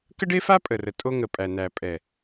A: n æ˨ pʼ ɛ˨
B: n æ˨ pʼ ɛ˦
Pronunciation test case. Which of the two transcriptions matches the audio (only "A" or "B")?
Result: A